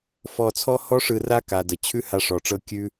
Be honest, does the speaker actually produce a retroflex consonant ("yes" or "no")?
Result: yes